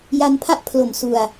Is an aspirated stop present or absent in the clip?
present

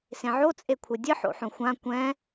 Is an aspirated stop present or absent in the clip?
present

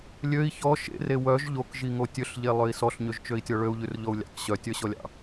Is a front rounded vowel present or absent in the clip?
present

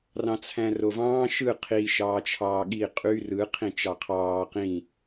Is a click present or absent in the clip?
absent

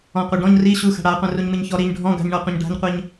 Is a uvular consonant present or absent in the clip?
present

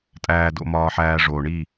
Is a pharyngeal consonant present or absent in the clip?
present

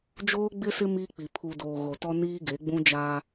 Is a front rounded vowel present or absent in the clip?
absent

